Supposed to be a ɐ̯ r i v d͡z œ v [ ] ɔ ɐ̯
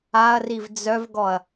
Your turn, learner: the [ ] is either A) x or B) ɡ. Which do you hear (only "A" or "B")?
B